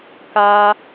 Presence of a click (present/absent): absent